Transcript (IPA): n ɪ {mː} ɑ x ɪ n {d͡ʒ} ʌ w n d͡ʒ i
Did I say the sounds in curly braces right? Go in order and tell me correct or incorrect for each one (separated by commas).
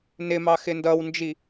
incorrect, incorrect